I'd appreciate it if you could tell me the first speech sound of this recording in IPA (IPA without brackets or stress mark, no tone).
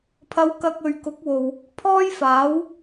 pʰ